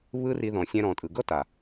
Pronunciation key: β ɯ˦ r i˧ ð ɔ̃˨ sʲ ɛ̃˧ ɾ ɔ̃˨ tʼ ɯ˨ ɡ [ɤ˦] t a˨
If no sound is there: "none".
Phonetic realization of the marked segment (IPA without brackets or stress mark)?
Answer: ɤ˦